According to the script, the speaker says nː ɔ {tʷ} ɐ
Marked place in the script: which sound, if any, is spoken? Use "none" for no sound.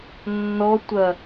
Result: tʷ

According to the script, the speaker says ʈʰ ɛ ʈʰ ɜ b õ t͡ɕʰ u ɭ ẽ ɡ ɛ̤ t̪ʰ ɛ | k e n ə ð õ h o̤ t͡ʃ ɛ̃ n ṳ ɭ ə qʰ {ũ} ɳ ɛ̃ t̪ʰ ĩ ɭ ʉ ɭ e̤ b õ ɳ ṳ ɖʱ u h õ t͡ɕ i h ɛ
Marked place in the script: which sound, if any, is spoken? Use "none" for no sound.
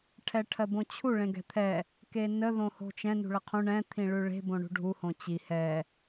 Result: ũ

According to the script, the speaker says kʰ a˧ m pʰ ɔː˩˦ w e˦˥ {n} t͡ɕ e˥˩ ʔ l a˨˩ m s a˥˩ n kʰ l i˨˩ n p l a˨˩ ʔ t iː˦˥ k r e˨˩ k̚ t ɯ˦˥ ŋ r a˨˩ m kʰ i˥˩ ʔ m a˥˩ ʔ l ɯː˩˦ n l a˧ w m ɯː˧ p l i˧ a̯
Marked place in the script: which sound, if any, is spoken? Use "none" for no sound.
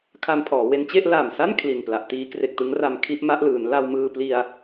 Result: n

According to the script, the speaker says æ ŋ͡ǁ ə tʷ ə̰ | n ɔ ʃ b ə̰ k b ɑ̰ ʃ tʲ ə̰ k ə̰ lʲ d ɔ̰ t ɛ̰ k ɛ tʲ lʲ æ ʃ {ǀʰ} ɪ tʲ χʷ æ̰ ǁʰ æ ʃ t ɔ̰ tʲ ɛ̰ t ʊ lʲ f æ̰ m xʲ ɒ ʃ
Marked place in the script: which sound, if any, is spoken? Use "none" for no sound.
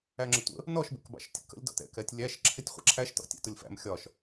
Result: ǁʰ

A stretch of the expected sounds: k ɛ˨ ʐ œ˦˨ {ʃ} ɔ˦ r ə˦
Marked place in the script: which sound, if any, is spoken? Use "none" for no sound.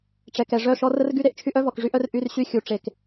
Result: ʃ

